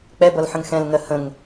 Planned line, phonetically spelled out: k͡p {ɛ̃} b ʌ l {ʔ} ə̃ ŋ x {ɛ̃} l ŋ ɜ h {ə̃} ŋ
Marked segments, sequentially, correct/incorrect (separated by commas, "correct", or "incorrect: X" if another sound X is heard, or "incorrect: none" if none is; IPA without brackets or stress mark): incorrect: ɛ, incorrect: ħ, correct, correct